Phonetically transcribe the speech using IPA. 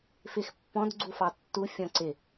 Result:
f ɪ x pː ɔ̃ d ɡ͡ǀ u f ɑ tː u fʲ ɔ̃ ǀ ɪ

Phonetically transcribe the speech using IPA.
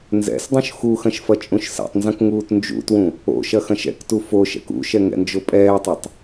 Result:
n z ɛ̰ s dˤ ũ ʃ x u x ɐ̃ ʃ f ɐ t͡ʃʼ ũ ʃ s ɛ̰ tˤ n z ɐ̃ k ŋ uː t n d͡ʒ ṵ t w ũ | o̰ ʃ ɐ x ɐ̃ ʃ ɛ̰ k t u f o ʃ ɛ̰ k ṵ ʃ ɛ ŋ ɛ̰ n d͡ʒ o pʼ ɛː tˤ ɛ tˤ

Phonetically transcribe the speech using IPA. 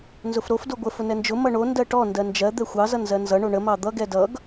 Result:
n z ʊ f ɾ o f d o ɡʷ ə f ʊ n ɛ n d͡ʒ ʊ m ʌ ɳ o n d ɜ ʈ ɔ n d ɜ n d͡ʒ ɜ d̪ ɛ xʷ ɑ z ʌ n z ɜ n z ʌ ɳ o ɳ ə m ɑ d̪ ʌ ɡ ɛ d ʌ ɡ

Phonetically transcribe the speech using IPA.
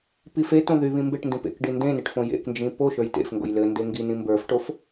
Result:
p i f e t õ ð y β ĩ m b e ʈ n d ĩ p ḛ k ɖ i n d ẽ n e ʈ f õ j ḛ k n d͡ʒ ĩ p o ʃ ə˞ j t ḛ f ŋ ɡ o̰ j l ɘ n d e ŋ ɡ i n ĩ m b ə˞ f ʈ o f

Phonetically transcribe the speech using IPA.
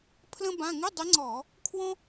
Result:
pʰ l ə̃˥ b ã˧˥˧ ŋ ɪ˧˥˧ dˤ ɪ˧˥ ŋ͡ǀ ɔ˧˩˧ | kʰ w ɔ̃˥

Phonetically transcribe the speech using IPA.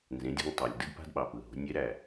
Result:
n z ẽ˩˧ dʲ a̤˧ ŋ tˤ æ˩ lʲ d ɯ˥ d p a̤˥ d ɓ ɑ˩ p ɯ˩ ɦ o̤˩˧ nʲ e˧˥ ɾ æ˩

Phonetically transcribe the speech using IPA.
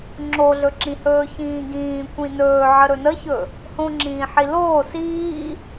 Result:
ŋ͡ǁ o ɮ ɵ ǁ ĩ h ɵː ç ĩː ɡ ĩː kʷ ĩ n ɵː ʕ ə ɾ ɵ n ə ç ɵ | h õ ŋ͡ǁ ĩː ħ i l oː s iː

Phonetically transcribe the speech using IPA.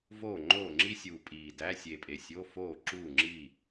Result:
v oː˥˩ ŋ͡ǃ oː˥˩ ŋ͡ǁ i˥ sʲ uː˨˩ pʼ iː˨˩ d æ˧˥˧ sʲ e˨˩ pʼ e˨˩ sʲ o˧˥˧ f oː˥˩ ǁ uː˥˩ ŋ͡ǁ i˥˩

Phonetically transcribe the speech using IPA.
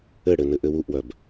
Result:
ɘ ɽ ɘ n ɘ ʔ ɘ w u ʔ w œ b

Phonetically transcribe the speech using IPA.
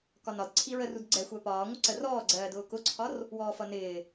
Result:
k ɒ n ɒ d ǀʰ i ɹ ə r u d ɡ͡ǀ ɛ xʷ æ p ɒː ŋʷ ɪ ǀ ə r ɔː ɡ͡ǀ ɜː d ʊː k ʊ ǀʰ ɒ r | w ɔː f ʌ n ɪː

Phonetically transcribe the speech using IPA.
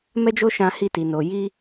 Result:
m ɛ˦ d͡ʒ o˦ ʃ ã˧ h i˧ t i˨ n o˨ j i˧

